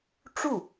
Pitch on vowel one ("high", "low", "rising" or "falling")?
falling